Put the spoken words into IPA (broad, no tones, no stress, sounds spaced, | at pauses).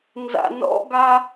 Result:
n z a̰ n ɔ̰ ɡ a